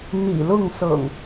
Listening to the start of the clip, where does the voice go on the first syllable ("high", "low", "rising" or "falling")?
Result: low